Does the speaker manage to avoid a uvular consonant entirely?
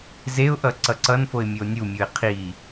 no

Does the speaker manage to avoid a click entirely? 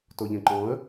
no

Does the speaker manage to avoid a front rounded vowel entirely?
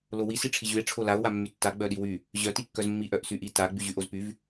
no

